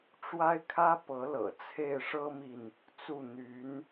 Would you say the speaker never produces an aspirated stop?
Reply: no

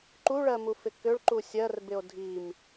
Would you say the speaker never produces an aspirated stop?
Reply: yes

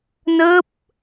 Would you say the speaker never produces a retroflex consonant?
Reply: yes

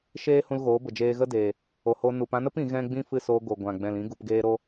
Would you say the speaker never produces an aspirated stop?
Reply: yes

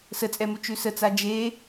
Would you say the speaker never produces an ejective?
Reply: no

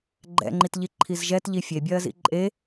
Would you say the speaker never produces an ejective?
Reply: no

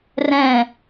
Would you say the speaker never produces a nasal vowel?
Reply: no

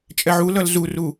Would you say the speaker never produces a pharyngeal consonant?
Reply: no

